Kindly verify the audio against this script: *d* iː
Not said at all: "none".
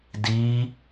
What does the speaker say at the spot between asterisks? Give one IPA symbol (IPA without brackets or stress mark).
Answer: d